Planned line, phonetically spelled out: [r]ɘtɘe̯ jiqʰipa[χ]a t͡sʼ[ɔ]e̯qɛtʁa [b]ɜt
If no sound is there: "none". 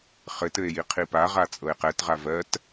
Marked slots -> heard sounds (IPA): χ, ʁ, ɤ, v

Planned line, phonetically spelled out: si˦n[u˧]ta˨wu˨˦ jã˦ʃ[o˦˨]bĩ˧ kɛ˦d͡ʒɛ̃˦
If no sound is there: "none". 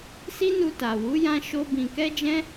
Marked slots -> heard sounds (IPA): u˧, o˦

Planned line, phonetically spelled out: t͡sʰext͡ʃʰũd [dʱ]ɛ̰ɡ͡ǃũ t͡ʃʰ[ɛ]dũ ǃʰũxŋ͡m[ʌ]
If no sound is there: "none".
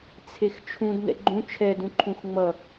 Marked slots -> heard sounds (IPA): n, ɛ, ʌ

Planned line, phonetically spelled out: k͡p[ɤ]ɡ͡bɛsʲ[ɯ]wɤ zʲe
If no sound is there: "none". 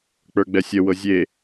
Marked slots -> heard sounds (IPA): ə˞, ə

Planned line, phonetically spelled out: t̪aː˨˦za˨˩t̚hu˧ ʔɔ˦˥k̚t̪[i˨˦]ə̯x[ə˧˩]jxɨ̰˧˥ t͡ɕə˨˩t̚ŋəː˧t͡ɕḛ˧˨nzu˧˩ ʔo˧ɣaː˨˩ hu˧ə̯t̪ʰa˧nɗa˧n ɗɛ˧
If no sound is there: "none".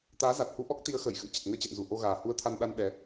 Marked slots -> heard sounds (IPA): i˨˦, ə˧˩

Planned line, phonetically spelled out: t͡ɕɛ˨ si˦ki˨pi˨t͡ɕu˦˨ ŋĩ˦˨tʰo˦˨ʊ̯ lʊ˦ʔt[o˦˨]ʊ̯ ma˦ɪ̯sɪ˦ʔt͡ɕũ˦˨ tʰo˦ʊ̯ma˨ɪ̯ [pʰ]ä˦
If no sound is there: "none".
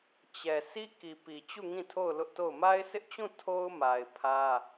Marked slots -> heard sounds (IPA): o˦˨, pʰ

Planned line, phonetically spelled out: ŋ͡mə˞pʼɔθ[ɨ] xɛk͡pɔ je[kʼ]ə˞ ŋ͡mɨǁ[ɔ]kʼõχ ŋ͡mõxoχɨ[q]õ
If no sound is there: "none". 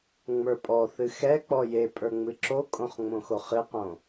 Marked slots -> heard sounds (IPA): ɨ, pʼ, o, q

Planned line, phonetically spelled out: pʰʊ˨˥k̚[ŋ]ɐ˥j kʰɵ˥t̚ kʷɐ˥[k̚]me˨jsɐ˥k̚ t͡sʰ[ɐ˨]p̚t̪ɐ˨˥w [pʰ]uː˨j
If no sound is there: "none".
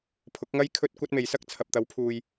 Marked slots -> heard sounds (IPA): ŋ, t̚, ɐ˨, pʰ

